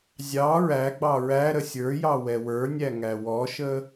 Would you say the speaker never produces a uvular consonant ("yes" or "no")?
yes